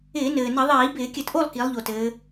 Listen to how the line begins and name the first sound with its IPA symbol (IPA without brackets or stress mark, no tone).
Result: ɪː